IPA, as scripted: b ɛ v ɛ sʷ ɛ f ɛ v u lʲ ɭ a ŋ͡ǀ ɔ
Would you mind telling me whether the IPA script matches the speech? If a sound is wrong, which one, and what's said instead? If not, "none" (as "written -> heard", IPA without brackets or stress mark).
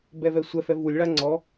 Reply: none